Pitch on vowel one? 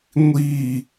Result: falling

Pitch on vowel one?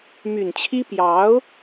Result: low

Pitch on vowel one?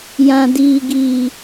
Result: low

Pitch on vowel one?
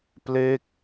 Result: falling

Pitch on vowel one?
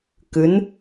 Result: rising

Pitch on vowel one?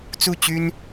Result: falling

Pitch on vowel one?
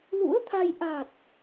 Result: rising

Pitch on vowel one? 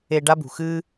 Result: high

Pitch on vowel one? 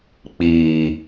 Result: low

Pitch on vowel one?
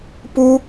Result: high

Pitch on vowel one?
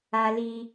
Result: high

